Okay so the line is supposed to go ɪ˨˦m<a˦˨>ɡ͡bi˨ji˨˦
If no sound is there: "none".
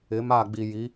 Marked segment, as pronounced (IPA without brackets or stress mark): a˦˨